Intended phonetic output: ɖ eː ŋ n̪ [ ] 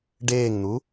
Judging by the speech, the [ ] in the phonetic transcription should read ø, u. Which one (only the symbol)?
u